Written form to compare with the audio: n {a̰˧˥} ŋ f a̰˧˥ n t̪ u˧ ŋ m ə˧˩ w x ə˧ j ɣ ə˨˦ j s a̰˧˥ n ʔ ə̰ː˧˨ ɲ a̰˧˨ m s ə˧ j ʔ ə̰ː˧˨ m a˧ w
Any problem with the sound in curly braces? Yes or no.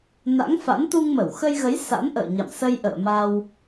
no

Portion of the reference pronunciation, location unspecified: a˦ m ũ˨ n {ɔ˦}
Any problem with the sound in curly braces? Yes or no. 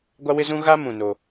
yes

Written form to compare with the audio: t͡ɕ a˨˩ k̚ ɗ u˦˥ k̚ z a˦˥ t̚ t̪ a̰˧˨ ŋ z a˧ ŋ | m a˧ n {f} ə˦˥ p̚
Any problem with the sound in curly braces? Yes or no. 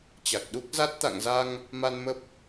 yes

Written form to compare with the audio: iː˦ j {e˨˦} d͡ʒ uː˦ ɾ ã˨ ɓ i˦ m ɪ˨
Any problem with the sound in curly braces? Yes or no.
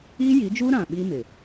yes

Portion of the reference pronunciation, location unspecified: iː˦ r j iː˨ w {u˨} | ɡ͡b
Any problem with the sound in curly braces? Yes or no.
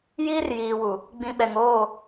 no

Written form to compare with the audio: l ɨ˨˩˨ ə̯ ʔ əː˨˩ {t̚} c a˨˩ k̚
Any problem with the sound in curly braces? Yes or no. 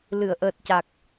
no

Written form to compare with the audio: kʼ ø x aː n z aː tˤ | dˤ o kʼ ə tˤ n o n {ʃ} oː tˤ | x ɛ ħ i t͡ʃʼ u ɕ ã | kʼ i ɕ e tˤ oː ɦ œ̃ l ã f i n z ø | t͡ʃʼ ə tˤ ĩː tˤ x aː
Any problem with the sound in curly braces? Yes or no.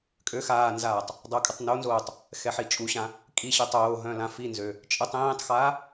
yes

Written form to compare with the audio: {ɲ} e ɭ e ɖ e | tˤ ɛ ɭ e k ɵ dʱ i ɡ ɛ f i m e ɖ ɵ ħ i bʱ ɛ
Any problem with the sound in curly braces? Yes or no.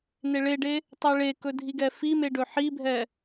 yes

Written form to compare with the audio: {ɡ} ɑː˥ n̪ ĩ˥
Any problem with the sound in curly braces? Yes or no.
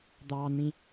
yes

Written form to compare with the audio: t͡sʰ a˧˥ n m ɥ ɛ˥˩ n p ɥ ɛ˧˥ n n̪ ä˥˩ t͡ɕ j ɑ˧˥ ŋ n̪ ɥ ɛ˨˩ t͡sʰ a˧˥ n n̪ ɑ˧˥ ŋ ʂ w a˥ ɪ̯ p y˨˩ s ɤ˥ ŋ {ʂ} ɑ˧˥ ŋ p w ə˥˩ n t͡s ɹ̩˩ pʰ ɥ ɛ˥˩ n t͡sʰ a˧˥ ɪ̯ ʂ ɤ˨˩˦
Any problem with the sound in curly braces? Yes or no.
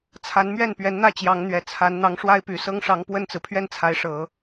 no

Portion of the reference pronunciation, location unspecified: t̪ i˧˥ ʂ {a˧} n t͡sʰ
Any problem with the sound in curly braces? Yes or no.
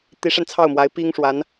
no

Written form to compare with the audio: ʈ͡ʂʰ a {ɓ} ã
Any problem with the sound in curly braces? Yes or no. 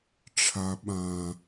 no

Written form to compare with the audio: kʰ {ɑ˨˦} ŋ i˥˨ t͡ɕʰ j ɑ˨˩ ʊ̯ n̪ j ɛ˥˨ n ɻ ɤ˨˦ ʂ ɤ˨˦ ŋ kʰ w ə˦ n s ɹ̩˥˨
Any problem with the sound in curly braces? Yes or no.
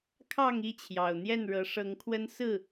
yes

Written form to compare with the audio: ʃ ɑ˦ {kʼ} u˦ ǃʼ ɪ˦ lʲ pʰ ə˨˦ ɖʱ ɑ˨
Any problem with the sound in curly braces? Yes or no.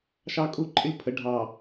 no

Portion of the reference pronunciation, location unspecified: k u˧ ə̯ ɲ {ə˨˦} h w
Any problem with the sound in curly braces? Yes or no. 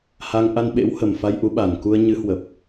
yes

